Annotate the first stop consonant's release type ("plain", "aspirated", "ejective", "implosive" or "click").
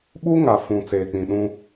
implosive